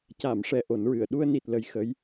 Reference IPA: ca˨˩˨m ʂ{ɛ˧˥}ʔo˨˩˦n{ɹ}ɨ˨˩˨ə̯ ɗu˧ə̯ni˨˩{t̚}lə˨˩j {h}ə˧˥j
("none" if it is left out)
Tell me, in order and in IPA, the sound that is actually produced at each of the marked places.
ɛ˧˥, ɹ, t̚, x

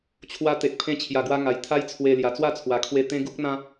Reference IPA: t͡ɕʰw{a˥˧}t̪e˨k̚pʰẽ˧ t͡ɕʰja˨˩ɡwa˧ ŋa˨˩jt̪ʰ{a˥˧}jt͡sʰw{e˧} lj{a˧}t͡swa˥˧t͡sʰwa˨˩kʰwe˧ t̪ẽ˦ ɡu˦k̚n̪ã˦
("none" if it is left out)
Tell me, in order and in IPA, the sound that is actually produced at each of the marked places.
a˧, a˦, e˧, a˨˩

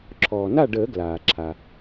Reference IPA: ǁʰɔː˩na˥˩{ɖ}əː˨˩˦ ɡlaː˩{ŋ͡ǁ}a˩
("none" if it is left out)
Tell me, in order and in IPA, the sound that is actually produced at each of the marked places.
ɖ, ǁʰ

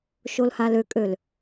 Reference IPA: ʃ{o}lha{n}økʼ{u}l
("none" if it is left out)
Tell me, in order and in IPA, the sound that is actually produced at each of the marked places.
o, l, ø

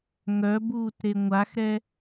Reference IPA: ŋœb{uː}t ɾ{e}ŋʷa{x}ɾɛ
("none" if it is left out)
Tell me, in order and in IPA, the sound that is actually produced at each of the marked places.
uː, e, x

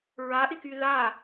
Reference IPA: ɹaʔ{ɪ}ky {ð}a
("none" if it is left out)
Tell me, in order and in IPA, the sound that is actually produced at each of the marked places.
ɪ, ð

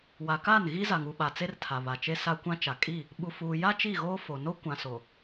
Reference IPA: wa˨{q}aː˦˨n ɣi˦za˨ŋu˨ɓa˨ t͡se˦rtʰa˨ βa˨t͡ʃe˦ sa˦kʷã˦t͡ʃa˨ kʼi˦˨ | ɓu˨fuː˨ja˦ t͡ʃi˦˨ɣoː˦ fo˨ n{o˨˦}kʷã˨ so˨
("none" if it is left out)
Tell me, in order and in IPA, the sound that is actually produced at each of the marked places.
k, o˦

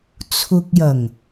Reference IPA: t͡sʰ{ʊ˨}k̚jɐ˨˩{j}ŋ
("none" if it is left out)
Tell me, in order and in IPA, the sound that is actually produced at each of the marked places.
ʊ˨, none

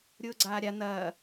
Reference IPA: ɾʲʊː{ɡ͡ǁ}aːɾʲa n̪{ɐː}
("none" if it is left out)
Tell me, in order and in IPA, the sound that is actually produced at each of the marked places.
ɡ͡ǀ, ɐː

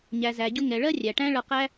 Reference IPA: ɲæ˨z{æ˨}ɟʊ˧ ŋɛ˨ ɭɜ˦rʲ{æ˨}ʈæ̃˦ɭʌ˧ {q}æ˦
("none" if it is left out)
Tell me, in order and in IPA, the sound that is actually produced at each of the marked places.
æ˨, æ˨, q

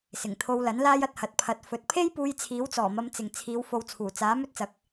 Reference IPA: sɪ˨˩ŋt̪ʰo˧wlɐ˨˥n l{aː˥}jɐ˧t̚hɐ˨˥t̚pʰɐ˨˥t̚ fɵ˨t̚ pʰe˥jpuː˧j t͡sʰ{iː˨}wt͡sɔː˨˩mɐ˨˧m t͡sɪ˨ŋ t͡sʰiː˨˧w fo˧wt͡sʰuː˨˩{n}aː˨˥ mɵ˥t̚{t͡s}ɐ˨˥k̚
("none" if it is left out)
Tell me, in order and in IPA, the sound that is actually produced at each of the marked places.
aː˥, iː˨˥, t͡s, t͡s

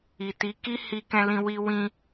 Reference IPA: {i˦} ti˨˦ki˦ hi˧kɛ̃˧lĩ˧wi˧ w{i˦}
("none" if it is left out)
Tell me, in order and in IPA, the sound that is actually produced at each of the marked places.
i˨, ĩ˦

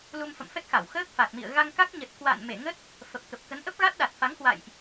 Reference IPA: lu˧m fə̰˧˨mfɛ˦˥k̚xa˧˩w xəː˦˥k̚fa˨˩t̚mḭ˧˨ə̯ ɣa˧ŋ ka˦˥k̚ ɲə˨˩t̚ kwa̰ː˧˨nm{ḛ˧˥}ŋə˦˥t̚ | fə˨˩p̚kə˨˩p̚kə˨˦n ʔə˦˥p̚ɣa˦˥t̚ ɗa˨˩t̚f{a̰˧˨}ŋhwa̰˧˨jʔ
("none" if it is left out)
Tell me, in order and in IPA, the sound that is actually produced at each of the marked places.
e˧˩, a˨˦

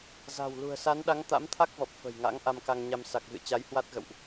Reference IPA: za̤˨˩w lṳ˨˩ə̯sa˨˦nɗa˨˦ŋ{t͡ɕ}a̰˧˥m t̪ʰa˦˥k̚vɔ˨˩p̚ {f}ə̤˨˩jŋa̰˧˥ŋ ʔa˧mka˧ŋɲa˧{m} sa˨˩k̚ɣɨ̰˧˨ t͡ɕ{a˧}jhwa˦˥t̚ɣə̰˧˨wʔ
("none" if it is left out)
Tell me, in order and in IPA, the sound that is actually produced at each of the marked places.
t̪, f, m, a˨˦

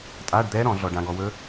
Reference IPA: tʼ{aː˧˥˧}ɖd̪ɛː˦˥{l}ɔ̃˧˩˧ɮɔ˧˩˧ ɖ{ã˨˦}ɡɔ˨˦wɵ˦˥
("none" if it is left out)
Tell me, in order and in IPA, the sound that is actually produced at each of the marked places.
aː˧˥˧, ɾ, ã˨˦

